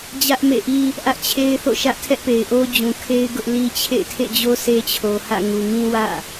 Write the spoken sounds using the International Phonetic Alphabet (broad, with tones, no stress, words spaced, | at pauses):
d͡ʑä˦ʔmḛ˦˨ʔi˦ | ʔä˦ʔt͡ɕʰe˦ɪ̯θo̰˦˨ ʃä˦ʔtʰɛ˦ʔpe˨ɪ̯ʔo˦ d͡ʑũ˨kʰe˦ɪ̯ ɡʊ˦ʔli˦ t͡ɕʰḛ˦˨ɪ̯tʰḛ˦˨d͡ʑo˦ se˦t͡ɕʰo˨hä̰˦˨ŋu˨ ŋĩ˦wä̰˦˨